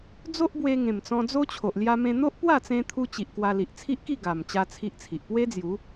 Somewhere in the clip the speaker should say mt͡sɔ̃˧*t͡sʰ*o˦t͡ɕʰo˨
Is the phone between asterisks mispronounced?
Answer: yes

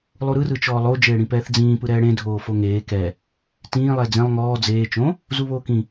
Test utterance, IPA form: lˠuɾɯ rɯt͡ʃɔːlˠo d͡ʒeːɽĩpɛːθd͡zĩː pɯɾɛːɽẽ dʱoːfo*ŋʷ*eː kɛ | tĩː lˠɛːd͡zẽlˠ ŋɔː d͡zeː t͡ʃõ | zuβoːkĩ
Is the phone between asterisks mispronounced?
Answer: yes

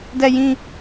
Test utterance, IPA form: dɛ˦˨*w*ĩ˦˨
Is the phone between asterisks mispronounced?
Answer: yes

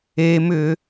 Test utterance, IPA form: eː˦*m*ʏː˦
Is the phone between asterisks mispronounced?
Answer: no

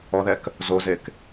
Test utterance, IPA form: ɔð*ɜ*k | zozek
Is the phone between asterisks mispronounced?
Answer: yes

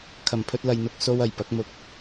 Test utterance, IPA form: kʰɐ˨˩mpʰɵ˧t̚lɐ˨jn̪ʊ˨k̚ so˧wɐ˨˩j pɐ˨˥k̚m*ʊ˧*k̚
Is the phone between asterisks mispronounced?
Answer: no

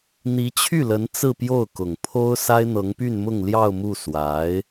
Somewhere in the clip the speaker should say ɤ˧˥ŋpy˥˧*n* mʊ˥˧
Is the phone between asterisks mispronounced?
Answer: no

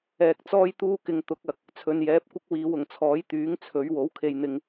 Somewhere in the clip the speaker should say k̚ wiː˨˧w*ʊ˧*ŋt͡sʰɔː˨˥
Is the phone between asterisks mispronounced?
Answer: yes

